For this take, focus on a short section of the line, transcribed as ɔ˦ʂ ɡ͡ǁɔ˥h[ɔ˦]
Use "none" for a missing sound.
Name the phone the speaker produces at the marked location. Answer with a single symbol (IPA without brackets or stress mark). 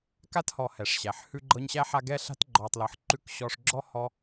ɔ˦